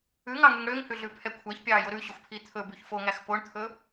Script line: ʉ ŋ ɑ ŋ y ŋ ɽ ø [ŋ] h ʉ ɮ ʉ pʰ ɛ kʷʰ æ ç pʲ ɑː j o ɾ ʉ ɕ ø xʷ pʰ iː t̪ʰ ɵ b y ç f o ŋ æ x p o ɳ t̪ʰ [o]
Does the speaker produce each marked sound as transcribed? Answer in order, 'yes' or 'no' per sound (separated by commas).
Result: yes, no